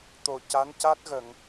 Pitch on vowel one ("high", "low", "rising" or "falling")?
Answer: low